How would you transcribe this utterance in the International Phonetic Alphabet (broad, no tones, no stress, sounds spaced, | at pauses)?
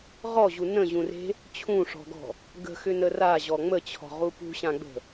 ʁ ɔ ʑ u n ə̃ ʑ ũ r e̤ | t͡ɕʰ ũ ʂ ɔ̤ ɡ ɔ̤ | ɡ ə̤ x ʏ n ə r a ʑ ɔ ŋ͡m ə t͡ɕʰ ɔ̤ ʁ u p ṳ ɕ ã ɡ͡b ə̤